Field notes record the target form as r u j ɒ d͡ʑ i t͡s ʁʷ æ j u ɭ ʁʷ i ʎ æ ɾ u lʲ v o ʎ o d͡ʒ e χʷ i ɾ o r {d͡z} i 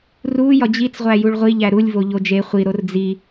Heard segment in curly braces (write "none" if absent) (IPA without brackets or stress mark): d͡z